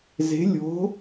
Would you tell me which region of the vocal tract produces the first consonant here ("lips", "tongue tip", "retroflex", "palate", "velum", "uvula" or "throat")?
tongue tip